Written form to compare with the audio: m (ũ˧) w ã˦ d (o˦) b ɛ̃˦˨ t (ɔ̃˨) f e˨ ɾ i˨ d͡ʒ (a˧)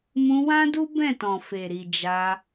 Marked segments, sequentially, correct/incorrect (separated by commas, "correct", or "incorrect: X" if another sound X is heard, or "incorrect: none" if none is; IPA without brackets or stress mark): correct, incorrect: u˦, correct, correct